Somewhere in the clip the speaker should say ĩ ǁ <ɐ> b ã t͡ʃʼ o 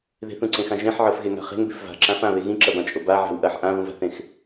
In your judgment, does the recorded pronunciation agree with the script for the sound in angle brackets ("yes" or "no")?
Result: yes